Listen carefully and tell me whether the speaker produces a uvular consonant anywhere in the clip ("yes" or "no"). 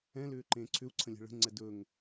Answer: no